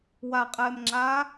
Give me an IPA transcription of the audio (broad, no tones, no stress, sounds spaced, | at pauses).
w a qʼ ɛː m ŋ͡ǁ aː